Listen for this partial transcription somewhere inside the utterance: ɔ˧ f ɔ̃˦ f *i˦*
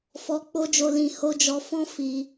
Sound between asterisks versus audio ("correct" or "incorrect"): incorrect